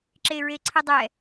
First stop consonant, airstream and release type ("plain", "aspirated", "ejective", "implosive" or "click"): click